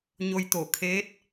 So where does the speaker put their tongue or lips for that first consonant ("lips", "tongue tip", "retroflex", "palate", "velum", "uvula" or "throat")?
palate